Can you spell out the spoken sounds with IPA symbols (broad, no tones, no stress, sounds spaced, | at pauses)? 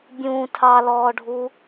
bʲ ũː tʰ ɑ l ɔː ɖʱ u